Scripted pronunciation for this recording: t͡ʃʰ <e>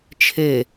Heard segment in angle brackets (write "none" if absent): e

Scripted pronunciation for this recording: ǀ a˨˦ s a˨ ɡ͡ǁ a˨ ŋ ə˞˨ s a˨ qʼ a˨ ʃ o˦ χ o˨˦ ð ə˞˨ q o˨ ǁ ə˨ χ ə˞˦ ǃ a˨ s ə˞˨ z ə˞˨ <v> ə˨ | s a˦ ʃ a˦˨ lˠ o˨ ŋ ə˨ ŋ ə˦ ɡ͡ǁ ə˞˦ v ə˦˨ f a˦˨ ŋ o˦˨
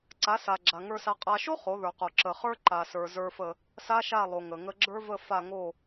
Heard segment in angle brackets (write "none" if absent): f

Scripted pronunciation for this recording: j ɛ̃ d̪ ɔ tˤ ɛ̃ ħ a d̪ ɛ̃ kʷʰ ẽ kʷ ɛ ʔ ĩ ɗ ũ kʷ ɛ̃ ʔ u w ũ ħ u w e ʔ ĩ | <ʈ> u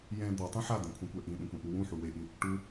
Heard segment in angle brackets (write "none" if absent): ʈ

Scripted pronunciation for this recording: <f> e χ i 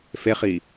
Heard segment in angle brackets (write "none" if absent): f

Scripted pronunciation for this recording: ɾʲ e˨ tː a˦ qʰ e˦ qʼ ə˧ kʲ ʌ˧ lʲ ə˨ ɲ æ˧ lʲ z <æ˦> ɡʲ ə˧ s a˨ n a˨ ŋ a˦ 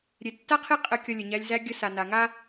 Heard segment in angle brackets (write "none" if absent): æ˧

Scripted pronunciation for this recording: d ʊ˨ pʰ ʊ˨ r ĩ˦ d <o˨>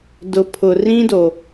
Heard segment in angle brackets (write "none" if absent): o˨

